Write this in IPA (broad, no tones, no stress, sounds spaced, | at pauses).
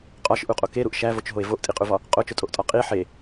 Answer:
qʼ ɒ ʃ ʔ u qʼ o k e ɾ u ʔ ʃ æ v o t͡ʃ ɦ o e̯ v o ʔ tʼ i qʼ u v ɒ | qʼ o t͡ʃ o tʼ o ʔ tʼ ɒ qʼ i ħ e